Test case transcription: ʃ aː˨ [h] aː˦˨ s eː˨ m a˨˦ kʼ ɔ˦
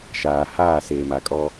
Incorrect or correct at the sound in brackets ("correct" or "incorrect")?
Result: correct